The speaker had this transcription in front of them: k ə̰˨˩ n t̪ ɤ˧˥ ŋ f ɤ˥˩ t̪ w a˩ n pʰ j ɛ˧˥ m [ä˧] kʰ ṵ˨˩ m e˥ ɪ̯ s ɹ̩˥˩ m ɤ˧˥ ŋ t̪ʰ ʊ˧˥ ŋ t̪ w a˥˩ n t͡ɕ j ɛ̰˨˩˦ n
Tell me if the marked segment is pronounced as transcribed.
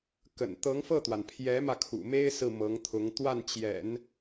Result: yes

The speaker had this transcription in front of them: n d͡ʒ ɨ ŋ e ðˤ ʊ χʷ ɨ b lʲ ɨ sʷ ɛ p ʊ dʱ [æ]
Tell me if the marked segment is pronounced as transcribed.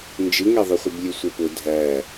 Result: yes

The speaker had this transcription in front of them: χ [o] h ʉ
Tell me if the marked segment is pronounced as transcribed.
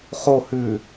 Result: yes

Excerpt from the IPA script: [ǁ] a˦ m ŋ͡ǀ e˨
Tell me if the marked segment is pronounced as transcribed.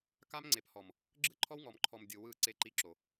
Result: no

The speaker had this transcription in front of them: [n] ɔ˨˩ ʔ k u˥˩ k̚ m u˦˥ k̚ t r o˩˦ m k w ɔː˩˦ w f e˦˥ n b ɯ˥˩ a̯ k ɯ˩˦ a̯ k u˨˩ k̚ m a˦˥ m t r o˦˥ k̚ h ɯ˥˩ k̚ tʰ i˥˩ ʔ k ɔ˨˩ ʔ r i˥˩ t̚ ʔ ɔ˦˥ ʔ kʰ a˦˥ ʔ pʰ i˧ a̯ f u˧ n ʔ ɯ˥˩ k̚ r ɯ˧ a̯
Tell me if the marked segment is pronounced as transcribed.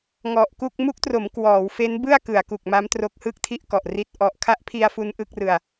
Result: no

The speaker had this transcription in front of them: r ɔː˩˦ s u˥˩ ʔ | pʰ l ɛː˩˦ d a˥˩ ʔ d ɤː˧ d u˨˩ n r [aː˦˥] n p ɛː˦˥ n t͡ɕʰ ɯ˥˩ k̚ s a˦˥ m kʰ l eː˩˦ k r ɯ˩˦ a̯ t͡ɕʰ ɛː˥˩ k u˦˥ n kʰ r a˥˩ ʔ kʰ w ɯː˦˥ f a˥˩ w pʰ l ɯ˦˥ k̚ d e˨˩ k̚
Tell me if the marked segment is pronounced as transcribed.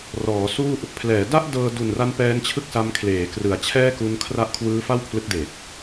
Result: no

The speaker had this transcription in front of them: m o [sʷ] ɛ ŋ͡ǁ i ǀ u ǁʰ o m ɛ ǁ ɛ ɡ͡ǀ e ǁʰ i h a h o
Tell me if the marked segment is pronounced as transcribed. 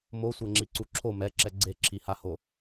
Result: yes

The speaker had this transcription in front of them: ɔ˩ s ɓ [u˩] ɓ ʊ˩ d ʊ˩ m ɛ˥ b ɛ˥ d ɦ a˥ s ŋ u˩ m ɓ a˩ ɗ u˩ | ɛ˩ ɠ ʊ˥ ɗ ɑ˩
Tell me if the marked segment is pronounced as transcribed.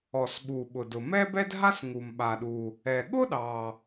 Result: yes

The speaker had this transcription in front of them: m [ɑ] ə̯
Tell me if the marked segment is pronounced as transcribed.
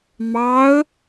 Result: yes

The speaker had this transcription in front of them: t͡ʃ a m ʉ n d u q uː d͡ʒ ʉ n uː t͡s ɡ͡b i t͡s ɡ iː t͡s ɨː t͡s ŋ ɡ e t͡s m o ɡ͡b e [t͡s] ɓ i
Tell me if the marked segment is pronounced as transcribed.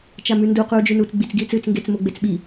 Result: yes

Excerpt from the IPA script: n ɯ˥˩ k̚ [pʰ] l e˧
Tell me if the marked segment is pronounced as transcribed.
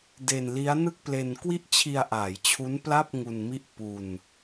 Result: no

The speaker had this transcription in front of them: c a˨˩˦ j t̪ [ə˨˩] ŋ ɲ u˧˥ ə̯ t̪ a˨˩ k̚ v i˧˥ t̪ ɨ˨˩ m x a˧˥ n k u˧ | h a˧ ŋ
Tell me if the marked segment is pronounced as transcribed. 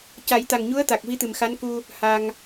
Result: no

